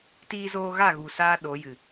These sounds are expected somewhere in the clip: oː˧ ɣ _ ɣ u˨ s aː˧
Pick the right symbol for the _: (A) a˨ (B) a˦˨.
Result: B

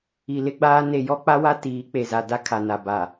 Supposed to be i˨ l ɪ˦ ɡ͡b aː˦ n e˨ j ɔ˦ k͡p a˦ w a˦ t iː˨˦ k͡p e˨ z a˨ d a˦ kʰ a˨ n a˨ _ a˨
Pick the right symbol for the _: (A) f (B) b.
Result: B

